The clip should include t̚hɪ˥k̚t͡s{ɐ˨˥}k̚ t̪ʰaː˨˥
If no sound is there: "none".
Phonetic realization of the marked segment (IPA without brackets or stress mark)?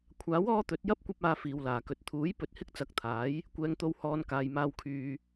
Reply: ɐ˨˥